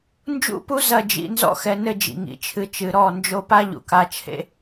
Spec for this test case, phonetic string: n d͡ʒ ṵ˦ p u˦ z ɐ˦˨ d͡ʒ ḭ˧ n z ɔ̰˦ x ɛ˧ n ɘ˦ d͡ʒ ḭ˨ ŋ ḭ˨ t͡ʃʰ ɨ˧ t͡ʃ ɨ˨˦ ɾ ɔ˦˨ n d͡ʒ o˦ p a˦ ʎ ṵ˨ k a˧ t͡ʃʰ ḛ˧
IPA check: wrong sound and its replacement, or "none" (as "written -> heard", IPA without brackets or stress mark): none